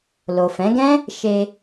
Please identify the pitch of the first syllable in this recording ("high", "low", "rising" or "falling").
low